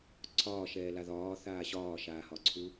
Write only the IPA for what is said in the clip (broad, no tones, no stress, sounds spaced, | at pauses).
ǀʰ ɒː ʃ ɛː l a ð ɒː θ aː ɕ ɒː ʃ aː h ɒ ǀʰ u